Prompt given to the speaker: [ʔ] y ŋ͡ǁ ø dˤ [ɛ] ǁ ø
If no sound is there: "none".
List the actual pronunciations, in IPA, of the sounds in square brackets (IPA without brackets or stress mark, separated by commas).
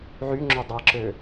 ʕ, ɛ